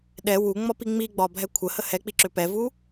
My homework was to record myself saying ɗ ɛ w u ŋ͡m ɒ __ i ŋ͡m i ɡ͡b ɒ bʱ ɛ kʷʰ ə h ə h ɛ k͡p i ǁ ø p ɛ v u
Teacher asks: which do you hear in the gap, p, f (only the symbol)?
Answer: p